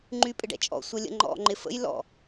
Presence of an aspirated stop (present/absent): absent